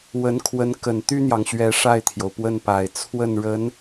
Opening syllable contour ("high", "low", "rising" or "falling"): rising